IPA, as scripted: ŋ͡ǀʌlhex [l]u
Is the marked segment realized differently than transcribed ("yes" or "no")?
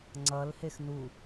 yes